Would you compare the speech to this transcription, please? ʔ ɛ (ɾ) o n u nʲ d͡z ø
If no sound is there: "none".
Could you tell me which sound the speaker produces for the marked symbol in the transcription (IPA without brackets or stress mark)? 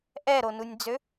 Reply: ɾ